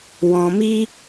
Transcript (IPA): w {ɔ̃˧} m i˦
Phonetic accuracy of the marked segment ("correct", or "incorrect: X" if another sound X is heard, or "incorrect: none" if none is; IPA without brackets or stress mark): correct